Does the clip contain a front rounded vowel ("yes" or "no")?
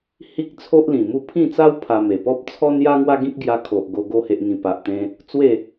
no